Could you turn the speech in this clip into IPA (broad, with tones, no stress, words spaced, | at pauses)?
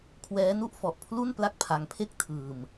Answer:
kʰwɛː˦˥nu˥˩ʔ fɔ˨˩ʔpʰlu˥˩n pla˥˩k̚pʰa˧ŋpʰe˥˩k̚ tʰɯː˧m